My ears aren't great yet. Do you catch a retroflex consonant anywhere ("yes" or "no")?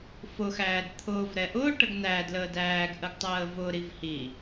yes